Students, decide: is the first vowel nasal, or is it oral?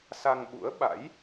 oral